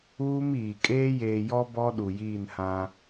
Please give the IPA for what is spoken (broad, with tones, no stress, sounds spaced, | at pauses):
uː˦ m iː˨ kʼ eː˦ j eː˨ j ɔ˦ b ɔ˦ ɗ u˨ j iː˦˨ n h ã˦